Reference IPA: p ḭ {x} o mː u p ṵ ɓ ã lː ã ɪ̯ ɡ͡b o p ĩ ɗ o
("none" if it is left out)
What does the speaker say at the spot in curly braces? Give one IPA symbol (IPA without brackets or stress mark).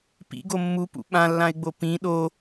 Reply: ɡ